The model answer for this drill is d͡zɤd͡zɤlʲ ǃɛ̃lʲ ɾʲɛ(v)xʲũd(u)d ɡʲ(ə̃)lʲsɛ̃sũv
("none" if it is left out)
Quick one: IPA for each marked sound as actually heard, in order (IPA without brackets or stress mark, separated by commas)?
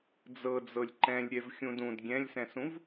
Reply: v, ũ, ɛ̃